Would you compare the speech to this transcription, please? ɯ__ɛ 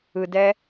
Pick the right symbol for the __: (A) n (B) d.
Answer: B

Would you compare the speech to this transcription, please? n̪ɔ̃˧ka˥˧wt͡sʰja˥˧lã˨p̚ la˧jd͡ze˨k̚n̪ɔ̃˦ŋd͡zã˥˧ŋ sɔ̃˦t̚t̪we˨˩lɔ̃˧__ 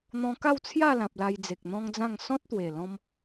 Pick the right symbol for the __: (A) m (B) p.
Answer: A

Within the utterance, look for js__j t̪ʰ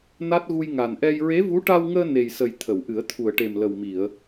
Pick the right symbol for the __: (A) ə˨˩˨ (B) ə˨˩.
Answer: B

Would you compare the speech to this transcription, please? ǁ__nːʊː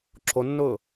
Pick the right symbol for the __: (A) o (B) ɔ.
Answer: A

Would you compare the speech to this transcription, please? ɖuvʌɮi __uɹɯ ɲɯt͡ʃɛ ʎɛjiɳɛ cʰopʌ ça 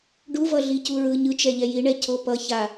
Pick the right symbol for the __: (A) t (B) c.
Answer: B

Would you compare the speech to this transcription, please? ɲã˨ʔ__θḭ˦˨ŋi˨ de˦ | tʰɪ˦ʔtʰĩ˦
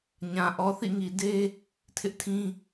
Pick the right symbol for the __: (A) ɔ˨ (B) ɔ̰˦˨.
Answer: A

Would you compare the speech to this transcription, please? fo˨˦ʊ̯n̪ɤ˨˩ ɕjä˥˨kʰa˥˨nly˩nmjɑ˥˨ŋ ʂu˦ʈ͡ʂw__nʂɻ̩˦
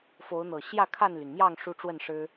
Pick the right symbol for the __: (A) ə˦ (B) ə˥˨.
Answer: B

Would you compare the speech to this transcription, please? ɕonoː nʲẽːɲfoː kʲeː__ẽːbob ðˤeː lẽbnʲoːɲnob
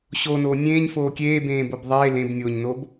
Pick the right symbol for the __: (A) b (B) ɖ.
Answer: A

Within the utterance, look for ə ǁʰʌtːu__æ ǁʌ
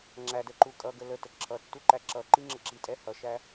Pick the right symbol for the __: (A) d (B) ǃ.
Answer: B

